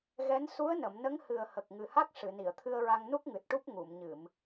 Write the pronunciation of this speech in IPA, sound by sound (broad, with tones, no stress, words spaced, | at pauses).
ɣɛ˧˥n su˧˥ə̯nə˨˩˨mnə˧˥ŋ hɨ˨˩ə̯hə˨˩k̚ ŋɨ˨˩ha˦˥k̚ ʂɨ˨˩˨ni˨˩˨ə̯t̪ʰɨ˧ə̯ɹa˧ŋ nu˦˥k̚ŋɨ˨˩t̚ʈu˦˥p̚ ŋu˨˩˨mɲɨ˨˩˨m